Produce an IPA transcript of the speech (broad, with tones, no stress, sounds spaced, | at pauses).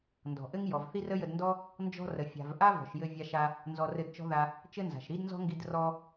n d ɔ̤˩ ʔ ɘ˥ ŋ j ɔ˩ v θ i˥ r ə˥ j ə˧ d n d ɔ˥ | n d͡ʒ ɔ̤˥ r ə˩ fʲ a̤˩ v ʔ a˥ v ɔ̤˩ ʃ j ɘ˧ vʲ a˧ ʃ a˧ | n z ɔ˧ r ɘ˧ d t͡ʃ ɔ̤˥ ð a˧ | t͡ʃ ɘ˥ n z a̤˩ ʃ ɾ i˥ d n z ɔ̤˥ ŋ ɡ i˧ d r ɔ˧